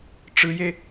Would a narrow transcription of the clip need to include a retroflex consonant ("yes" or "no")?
yes